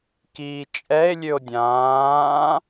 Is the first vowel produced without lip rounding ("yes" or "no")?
yes